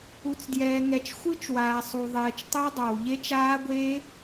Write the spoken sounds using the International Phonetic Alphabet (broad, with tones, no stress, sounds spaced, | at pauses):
u˨ t͡s d j ɛː˨ ŋ ɛ˨ t͡ʃ xʷ ɯ˦˥ t͡ʃ w aː˨ sˤ u˨ ðˤ ɛː˨ t͡ʃ tˤ ɛ˦˥ dˤ a˨ w ʎ e˦˥ t͡ʃ aː˦˥ ɡʷ eː˦˥